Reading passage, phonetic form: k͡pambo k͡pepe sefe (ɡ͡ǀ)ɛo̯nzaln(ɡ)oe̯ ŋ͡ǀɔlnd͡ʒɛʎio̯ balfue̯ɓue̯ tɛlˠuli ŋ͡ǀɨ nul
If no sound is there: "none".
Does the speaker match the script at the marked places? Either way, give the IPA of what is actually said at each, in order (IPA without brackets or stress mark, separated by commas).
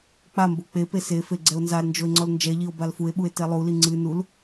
ɡ͡ǀ, d͡ʒ